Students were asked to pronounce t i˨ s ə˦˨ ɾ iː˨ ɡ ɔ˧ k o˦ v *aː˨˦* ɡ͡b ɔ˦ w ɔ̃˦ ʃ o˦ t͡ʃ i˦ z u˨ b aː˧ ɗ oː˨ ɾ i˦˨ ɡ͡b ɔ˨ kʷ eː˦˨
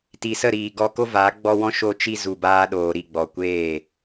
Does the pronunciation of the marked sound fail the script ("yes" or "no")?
no